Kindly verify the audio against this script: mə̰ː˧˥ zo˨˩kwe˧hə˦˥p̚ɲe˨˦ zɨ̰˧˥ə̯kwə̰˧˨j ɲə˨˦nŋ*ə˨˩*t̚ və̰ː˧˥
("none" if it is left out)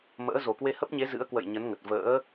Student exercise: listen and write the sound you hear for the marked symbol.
ə˨˩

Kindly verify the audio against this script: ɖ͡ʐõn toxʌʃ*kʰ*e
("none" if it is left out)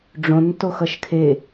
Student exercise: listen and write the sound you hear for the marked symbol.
kʰ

